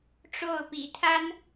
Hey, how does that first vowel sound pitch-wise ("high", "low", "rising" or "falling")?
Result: falling